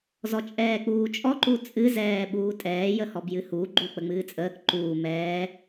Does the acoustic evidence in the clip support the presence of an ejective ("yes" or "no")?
yes